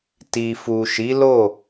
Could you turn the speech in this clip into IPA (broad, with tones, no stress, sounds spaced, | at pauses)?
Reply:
t i˨ f u˨ ʃ i˨˦ l o˦˨